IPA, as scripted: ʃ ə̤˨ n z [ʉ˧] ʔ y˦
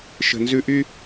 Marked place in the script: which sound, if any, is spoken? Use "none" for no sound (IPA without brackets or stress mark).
ʉ˧